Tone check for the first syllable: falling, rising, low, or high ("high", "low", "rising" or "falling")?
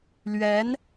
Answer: rising